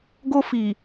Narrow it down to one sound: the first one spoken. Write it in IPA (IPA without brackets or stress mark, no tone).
ɡ